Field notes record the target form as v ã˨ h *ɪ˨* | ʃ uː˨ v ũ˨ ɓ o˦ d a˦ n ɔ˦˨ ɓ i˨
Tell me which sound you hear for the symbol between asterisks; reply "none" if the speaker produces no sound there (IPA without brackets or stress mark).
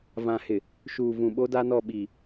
ɪ˨